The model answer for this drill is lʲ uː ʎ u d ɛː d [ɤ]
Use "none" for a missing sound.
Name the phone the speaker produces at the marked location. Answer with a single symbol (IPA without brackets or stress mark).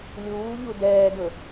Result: ɵ